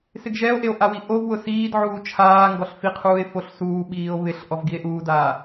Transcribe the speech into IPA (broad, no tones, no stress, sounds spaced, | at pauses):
s ɪ ɡ ʒ ɛ o̯ ʔ e o̯ ʔ a w i ʔ o v w ʊ s iː d ʕ uː t͡ʃʰ aː ŋ ɡ ɔ ɬ f i qʰ uː e̯ f o ɬ s uː ɓ iː o̯ β ɪ ɬ ʔ ɔ v ɡ i e̯ ʔ uː d aː